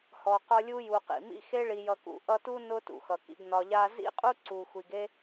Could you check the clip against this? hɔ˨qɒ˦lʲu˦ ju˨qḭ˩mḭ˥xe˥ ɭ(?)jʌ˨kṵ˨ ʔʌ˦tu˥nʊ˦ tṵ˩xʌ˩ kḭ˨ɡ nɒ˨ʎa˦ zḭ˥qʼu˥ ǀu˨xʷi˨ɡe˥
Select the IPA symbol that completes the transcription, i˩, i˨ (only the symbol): i˨